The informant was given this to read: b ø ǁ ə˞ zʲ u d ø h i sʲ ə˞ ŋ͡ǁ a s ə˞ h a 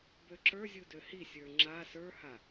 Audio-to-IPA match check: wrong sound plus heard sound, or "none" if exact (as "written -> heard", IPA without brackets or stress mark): none